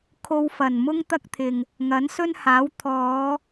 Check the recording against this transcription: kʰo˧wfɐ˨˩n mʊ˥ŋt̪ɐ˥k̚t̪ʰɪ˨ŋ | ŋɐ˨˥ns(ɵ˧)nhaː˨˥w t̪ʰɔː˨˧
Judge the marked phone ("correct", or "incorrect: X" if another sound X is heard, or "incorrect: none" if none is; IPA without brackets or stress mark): incorrect: ɵ˥